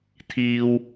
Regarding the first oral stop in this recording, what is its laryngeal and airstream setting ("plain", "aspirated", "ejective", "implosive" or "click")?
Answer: aspirated